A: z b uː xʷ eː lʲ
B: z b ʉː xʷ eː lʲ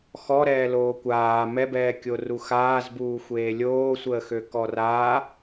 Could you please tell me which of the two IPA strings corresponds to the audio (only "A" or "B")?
A